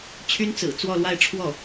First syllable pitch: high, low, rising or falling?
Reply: high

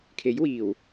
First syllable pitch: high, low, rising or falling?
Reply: rising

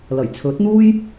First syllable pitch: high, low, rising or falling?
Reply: low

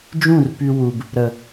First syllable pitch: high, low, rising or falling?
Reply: falling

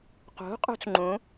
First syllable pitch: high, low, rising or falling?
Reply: rising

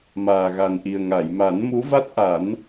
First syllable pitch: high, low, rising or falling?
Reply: low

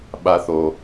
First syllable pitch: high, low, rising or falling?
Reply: high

